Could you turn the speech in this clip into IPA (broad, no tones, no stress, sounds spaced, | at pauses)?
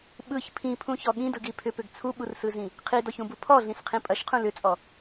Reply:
ɓ ɯ ç pʰ ĩ pʰ ũ ç ɔ ɠ ĩ d ɯ ɡ i pʰ ʏ p ʏ ɡ t͡sʰ u ɓ u r s ɯ z ĩ | qʰ i d ɔ ç ũ b u pʰ ɔ ɮ ĩ s qʰ ĩ pʼ ɐ ʃ qʰ ũ l ʏ t͡sʼ ɔ